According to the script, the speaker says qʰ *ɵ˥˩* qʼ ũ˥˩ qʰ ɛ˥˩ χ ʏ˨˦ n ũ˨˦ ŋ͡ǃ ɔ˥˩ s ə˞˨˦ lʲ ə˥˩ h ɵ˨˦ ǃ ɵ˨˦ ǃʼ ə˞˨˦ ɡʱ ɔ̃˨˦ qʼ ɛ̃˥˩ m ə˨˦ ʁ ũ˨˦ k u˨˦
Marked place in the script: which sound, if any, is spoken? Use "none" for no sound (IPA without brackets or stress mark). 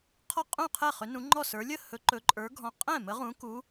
ɔ˥˩